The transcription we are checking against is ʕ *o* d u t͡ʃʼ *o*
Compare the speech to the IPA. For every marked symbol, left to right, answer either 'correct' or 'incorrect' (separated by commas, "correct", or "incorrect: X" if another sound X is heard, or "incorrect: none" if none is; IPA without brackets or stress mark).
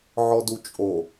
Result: incorrect: ɔ, correct